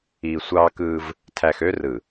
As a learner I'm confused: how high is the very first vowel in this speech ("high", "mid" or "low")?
high